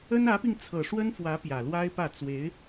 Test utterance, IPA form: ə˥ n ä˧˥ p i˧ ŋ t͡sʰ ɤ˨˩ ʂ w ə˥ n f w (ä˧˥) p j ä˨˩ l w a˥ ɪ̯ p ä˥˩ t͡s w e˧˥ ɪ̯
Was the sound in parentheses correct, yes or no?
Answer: yes